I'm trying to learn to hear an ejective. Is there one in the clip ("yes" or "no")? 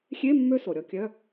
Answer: no